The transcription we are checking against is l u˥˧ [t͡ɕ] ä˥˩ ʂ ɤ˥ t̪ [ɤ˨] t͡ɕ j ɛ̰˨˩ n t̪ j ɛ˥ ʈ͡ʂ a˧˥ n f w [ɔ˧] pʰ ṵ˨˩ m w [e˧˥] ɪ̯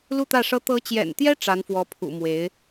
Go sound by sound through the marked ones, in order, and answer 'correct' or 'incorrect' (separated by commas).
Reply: incorrect, incorrect, incorrect, correct